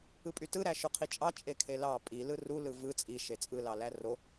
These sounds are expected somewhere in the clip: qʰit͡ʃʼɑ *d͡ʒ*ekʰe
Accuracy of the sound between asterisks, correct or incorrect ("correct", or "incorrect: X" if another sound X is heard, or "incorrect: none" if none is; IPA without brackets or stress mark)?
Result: incorrect: t͡ʃʼ